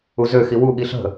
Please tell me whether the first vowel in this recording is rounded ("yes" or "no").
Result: yes